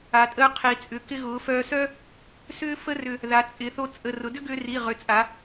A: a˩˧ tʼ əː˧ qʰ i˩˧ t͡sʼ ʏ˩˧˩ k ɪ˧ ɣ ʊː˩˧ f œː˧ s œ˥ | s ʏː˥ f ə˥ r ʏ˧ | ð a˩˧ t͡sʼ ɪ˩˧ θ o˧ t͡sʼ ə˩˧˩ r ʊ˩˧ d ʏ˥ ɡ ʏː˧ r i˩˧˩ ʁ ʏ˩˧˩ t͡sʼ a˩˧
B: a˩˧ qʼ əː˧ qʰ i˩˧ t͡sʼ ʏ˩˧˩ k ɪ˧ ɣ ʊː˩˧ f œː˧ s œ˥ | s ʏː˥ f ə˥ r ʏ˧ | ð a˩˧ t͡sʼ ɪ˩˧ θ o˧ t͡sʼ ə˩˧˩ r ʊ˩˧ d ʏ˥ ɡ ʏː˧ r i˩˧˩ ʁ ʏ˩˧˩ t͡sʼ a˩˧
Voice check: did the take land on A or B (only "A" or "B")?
A